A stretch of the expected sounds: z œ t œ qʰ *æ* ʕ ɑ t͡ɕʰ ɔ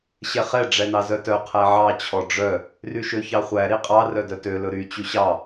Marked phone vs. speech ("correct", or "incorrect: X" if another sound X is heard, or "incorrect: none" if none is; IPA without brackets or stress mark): correct